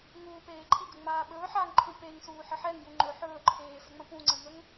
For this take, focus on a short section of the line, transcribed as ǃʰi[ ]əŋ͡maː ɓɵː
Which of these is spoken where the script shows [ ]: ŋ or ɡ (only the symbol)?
ɡ